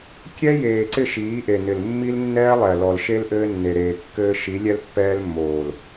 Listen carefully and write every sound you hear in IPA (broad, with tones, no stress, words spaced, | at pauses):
kʲɛ˦jeː˨ ǀɪ˦˨ʃiː˨˦ʔe˨nɪ˨l mːi˦lnːɛː˦ lˠɛ˨lɔ˨lʃe˦l ʔɘː˦nːe˨ɾeː˨kːɘː˦ ʃi˨˦lʲɛ˦lpːɛː˦lmːoː˨l